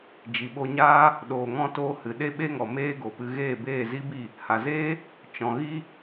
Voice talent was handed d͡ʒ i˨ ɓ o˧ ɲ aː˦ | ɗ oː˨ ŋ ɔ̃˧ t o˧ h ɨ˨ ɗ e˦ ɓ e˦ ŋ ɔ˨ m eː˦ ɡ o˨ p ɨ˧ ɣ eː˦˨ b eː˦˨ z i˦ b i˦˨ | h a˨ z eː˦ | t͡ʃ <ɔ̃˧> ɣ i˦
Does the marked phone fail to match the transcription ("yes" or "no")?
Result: yes